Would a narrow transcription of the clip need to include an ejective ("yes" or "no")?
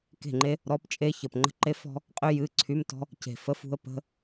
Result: yes